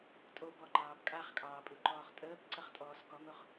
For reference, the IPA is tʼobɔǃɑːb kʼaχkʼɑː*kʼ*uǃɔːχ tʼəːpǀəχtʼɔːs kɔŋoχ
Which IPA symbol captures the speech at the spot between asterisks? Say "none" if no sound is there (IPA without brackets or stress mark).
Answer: pʼ